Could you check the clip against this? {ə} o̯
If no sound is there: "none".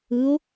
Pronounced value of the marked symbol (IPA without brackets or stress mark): ɯ